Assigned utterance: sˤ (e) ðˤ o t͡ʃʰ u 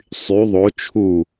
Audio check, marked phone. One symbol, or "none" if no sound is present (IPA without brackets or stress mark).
y